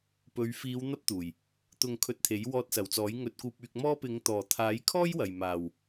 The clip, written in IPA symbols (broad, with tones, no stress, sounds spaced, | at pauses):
p ɵ˨˧ ɥ f iː˨˧ w n̪ ɐ˥ p̚ t̪ uː˨˩ j | t̪ ʊ˨ ŋ kʰ ɵ˧ t̚ t̪ʰ e˨˥ j w ɔː˧ t̚ s ɐ˨˩ w t͡s ɔː˨˥ j ŋ ɵ˧ t̚ k uː˧ p̚ yː˧ k̚ m ɔː˥ p ɪ˨˧ ŋ t̪ ɔː˨˩ t̪ʰ aː˨˥ j kʰ ɔː˥ j w ɐ˨ j m aː˨ w